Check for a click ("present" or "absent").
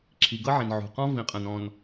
present